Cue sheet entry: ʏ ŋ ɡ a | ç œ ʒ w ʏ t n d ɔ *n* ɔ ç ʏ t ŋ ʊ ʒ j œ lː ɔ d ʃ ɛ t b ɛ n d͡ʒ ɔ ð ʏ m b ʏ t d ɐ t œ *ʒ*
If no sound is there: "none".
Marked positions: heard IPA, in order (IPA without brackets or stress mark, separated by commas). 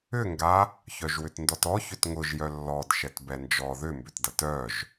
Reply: t, ʒ